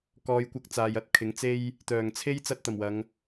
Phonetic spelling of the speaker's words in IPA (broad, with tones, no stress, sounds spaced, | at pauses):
k ɔː˨˧ j kʷ ɐ˧ k̚ t͡s aː˨ j ɐ˨˥ t̚ kʰ ɪ˨˥ ŋ t͡s e˥ j | t̪ œː˨˩ ŋ t͡sʰ e˥ j t͡s ɐ˧ t̚ t̪ ɐ˨˩ m w ɐ˨˧ ŋ